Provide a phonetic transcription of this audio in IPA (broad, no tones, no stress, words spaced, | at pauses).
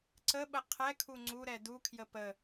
ǀəɓə qʰɛkʰu ŋ͡ǀuɾɛ dukʰjə pə